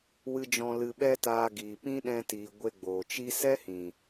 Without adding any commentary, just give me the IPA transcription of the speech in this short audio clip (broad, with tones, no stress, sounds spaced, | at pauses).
w ɨ˦ d͡ʒ ɔ̃˧ l ɨ˧ ɓ ɛ˦ t aː˧ ɡ iː˨ p ĩ˦ ɗ ɛ̃˧ t iː˨ ɡʷ e˧ ɡ͡b oː˨ t͡ʃ i˦ s ɛ˦ h ĩ˨